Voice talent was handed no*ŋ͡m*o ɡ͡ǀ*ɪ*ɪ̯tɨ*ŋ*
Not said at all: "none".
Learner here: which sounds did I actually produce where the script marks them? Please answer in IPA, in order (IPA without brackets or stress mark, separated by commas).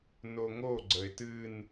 ŋ, ə, n